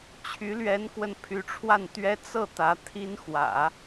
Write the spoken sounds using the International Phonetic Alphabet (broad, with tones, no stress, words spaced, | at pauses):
t͡ɕʰy˧˥lɥɛ˧˥nkwə˧n pʰy˧˥ʈ͡ʂʰwa˥˩nt̪ɥɛ˥ t͡sɤ˥˩t̪ä˧˥ t̪ʰi˥nxwä̰˨˩˦